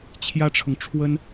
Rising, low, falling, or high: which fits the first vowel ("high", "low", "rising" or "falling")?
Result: high